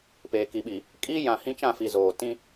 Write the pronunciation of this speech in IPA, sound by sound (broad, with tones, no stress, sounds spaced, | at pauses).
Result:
p eː˨ k i˨ ɓ i˨ | kʼ i˦ j ã˨ h ĩ˦ t͡ʃ ã˦˨ f i˨ z oː˨ t ĩ˦